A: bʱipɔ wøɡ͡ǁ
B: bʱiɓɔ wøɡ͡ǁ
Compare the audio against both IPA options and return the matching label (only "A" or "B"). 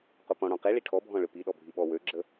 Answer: B